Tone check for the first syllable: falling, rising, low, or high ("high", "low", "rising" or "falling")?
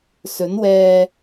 rising